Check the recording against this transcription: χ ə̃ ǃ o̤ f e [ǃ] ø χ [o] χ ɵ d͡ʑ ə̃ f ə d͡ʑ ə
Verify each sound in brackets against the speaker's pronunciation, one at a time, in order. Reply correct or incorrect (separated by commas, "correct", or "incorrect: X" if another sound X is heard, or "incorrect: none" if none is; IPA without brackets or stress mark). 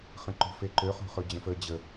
correct, incorrect: o̤